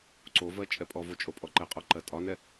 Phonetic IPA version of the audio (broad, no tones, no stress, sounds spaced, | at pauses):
ǀ o v ɜ t͡ʃʼ ɛ pʼ ɔ v o t͡ʃʼ o pʼ ɔ ǃ ɛ qʼ ɔ ǃ ɜ tʼ ɒ n ɛ